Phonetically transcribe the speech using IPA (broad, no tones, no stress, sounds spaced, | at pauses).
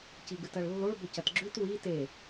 c i ɡ ɨ t ɐ ɭ lː o ɭ b ɵ c ɐ t ɡ͡ǁ ʉ t w i t e